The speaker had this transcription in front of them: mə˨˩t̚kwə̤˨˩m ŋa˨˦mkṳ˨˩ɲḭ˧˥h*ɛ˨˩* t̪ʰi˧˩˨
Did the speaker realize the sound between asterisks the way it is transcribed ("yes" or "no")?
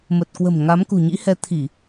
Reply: no